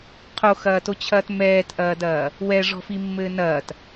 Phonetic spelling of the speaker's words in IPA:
qʰ o x ɐː t o t͡ɕʰ ɐː t m ɛː t ʔ ɐː d ɐː | w ɛ ʐ ɔ̤ f i mː ɘː n ɐː t

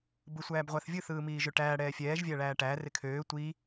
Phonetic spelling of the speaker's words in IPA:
b ɯ sʷ æː b ʁʷ æ θ vʲ ɯ θ ɯː m iː ʒ ø ʈ æː ɽ ɛː fʲ ɛː ʒ vʲ æ ɭ æː ʈ æ r ɪ kʰ øː tʷ i

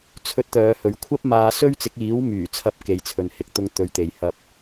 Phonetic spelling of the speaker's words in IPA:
t͡sʰ ɵ˧ t̚ t̪ œː˨˧ h ɵ˨˥ ɥ kʷʰ ɐ˥ p̚ m aː˧ s ɵ˥ ɥ t͡s ɪ˨˥ k̚ iː˨˥ w m yː˨˩ t͡sʰ ɐ˨˥ p̚ k e˨ j t͡sʰ ɵ˨ n h ɪ˨˥ k̚ t̪ ʊ˧ ŋ t̪ ɵ˨ ɥ t̪ e˨ j h ɐ˧ p̚

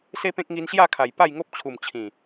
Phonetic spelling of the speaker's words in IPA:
s e˦ p ẽ˦ k̚ ŋ i˧ n ɕ j a˥˧ kʰ a˨˩ j p a˥˧ j ŋ o˦ p̚ t͡ɕʰ u˨˩ m t͡ɕʰ ĩ˨˩

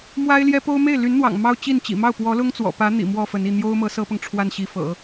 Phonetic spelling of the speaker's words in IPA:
m w a˥ ɪ̯ l j ɛ˥ p o˥ ʊ̯ m e˥˩ ɪ̯ l y˧˥ n n̪ w ɑ̰˨˩ ŋ m ɑ˥ ʊ̯ t͡ɕ i˥˩ n t͡ɕ ḭ˨˩ m ɑ˥˩ ʊ̯ p w ɔ˧˥ l ʊ˥ ŋ t͡s w ɔ̰˨˩ p ä˧˥ n̪ ḭ˨˩ m w ɔ˥˩ f ə˧˥ n i˥˩ n̪ j o˥ ʊ̯ m ɤ˧˥ s ɤ˥ p ɤ˨ ŋ ʈ͡ʂʰ w a˥˩ n ɕ i˧˥ f ɤ̰˨˩˦

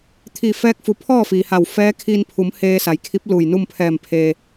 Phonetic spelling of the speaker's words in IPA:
t̪ʰ iː˧˩ f ɛː˧ k̚ f u˩˧ pʰ ɔː˥˨ f iː˩ h a˧˩ w f ɛː˧˥ kʰ iː˧ n pʰ u˩˧ m h eː˧ s a˩˧ j kʰ i˧˥ p̚ l uː˧˩ j n u˥˨ m pʰ ɛː˧˩ m pʰ eː˩

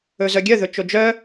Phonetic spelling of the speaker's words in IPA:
ɵ z œ ɡʲ œ ð ɵ t͡ʃ o d͡ʒ œ

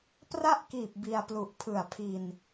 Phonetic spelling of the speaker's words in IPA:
p r a˥˩ ʔ k iː˨˩ p̚ b i˧ a̯ p l u˨˩ ʔ pʰ ɯ˨˩ a̯ pʰ i˧ n

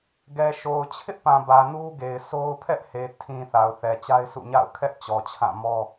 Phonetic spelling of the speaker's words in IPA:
ɡ ɛ˨ ʃ o˨ ʊ̯ t͡ɕʰ ɪ˦ ʔ p ã˨ b ä˨ n u˦ ɡ e˨ ɪ̯ s o˦ ʊ̯ pʰ ɛ˦ ʔ h e˨ tʰ ĩ˨ θ a˨ ʊ̯ θ ɛ˨ t͡ɕ a˦ ɪ̯ sʰ ṵ˦˨ ɲ a̰˦˨ ʊ̯ kʰ ɛ˦ ʔ t͡ɕ ɔ˨ t͡ɕʰ ã˦˨ m ɔ˦

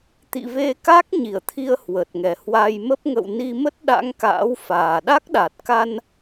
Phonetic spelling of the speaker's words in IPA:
t̪ ḭ˧˨ v e˧ k a˦˥ k̚ ɲ i˧˩ ə̯ t̪ʰ i˧ ə̯ h w ə˨˩ t̚ ŋ ɛ˨˩ h w a˧ j m ə˦˥ p̚ ŋ ə̰˧˨ w n i˧ m ə˦˥ t̚ ɗ a̰˧˥ ŋ k a̰ː˧˥ w f aː˨˩ ɗ a˦˥ k̚ ɗ a˨˩ t̚ k a˧ n

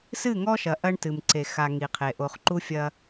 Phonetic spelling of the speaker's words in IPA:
s ɨ˦˨ ŋ ɔ˦ ʃ ɐ˨ ʔ ɐ˦ ɳ t ɨ˨ m ǀ e˨ x a˨ ŋ i˨ qʰ e˨ ʔ o˨ χ ǃ u˦ fʲ ɐ˦

